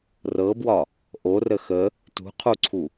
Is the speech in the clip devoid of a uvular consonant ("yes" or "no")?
no